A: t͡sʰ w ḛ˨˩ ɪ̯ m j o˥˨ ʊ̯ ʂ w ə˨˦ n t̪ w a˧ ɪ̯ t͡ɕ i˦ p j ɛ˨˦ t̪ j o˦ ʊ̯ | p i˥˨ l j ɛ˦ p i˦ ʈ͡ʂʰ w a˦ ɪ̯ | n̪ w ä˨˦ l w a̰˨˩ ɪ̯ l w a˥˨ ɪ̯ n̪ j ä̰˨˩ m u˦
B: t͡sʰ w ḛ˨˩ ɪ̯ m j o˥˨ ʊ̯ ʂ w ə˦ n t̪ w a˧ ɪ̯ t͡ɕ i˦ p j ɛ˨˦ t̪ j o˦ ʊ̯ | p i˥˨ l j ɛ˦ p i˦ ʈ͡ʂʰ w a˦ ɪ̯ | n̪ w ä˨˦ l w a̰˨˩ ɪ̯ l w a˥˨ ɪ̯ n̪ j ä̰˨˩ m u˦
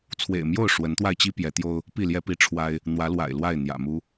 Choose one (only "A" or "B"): A